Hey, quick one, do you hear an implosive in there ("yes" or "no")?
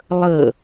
no